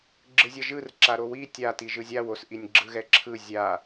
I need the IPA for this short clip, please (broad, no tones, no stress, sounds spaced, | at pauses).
ɡ͡ǁ ɯ zʲ ʌ ʒ ɯ r ǁ a ɾ o w i tʲ a t i ʒ ɯ zʲ a w o s ʔ i nʲ ɡ͡ǁ ɯ ɣ ɛ ǁʰ ɯ zʲ a